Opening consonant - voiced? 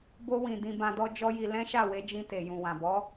yes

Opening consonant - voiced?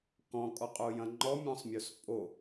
no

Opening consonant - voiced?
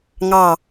yes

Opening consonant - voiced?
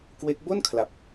no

